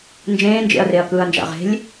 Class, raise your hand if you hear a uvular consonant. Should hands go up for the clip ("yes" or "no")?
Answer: yes